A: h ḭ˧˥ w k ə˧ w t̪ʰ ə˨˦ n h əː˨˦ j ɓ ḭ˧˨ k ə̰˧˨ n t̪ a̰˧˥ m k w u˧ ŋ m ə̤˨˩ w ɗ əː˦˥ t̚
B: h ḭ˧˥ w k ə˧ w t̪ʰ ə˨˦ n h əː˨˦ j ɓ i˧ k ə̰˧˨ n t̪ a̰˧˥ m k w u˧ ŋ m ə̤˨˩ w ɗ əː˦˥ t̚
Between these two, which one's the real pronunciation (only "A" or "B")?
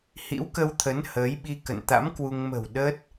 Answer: B